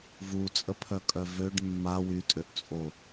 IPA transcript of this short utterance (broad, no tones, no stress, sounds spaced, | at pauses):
v u t͡sʼ ə pʰ œ kʼ œ v ø ɖ mː a w y tʼ ø ʔ t͡sʼ o